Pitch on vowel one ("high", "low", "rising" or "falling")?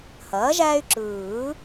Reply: rising